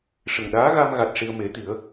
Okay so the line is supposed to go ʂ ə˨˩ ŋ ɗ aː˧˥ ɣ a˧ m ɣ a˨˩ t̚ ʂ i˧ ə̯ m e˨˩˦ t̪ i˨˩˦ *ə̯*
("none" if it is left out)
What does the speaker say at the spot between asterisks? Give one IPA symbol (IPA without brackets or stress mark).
ə̯